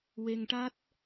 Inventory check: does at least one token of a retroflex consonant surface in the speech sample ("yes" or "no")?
yes